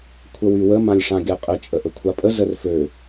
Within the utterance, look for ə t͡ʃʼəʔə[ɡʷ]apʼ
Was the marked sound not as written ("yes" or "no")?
yes